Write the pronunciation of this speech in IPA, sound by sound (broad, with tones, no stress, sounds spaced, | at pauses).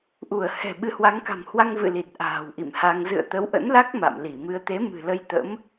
ʔ u˧˩ ə̯ h ɛ̤˨˩ ɓ ɨ˨˦ h w a˨˦ ŋ k a̤˨˩ m h w a˧ ŋ v ɨ̰˧˨ l i˨˩ t̚ ʔ a̤ː˨˩ w ʔ ḭ˧˨ m h a˧ ŋ z ɨ̰˧˨ ə̯ t̪ ə˨˦ w ʔ ə̰˧˥ n l a˦˥ k̚ m a̰˧˨ m l i˧˩ m ɨ˧ ə̯ t̪ e˨˦ m ɨ̤˨˩ l ə˧ j t̪ ə̰˧˥ m